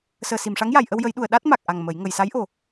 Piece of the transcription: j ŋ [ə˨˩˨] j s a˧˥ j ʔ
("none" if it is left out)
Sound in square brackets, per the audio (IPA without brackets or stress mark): ə˨˩˨